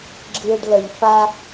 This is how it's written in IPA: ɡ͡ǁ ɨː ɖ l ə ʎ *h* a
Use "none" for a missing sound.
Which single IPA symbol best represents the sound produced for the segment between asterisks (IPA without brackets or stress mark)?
f